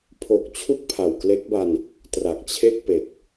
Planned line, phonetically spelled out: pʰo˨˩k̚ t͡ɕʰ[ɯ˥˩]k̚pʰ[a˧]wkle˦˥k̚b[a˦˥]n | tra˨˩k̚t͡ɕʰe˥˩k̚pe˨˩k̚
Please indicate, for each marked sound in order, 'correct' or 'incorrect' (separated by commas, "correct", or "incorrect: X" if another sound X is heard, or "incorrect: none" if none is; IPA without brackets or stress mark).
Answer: incorrect: u˥˩, incorrect: a˨˩, incorrect: a˧